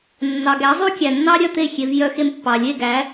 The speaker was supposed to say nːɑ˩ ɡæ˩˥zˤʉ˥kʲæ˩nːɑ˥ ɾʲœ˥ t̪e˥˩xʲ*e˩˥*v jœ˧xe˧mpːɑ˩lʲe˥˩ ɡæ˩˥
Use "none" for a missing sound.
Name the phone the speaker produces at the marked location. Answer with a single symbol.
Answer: e˩˥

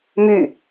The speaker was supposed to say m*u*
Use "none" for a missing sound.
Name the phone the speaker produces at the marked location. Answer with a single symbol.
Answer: y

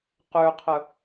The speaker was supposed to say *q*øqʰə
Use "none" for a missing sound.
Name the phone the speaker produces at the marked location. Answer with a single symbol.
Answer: q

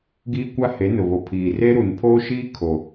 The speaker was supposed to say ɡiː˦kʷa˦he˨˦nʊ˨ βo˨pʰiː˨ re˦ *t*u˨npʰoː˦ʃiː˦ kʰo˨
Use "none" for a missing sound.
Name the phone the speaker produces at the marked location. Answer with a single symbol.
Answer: ɾ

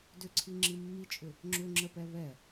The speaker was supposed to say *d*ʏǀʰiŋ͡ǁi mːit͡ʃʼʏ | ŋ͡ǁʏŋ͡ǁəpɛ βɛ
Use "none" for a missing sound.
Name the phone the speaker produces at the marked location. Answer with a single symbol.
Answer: d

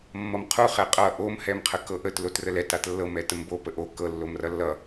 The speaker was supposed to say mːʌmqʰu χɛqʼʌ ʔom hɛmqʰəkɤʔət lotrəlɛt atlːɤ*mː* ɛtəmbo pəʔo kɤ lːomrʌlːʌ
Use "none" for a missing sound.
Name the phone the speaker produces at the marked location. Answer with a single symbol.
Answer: m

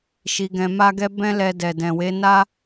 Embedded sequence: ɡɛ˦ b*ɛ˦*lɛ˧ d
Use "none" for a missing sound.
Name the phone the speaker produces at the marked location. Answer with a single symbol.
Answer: ɛ̃˦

